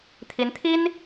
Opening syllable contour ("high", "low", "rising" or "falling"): rising